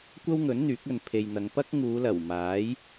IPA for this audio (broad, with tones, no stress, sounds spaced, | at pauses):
kʷ ɐ˥ w ŋ ɵ˨˥ n n̪ yː˨˥ k̚ ɵ˨ n pʰ e˨ j n̪ ɐ˨˧ ŋ p ɐ˥ k̚ ŋ uː˨˧ l ɐ˨˩ w m aː˨˥ j